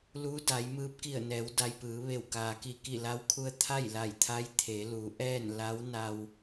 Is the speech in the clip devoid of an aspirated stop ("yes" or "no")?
no